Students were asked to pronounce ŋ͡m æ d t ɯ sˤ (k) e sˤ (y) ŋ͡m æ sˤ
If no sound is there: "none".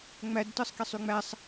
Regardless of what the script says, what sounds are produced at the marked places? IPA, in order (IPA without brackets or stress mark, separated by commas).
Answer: k, y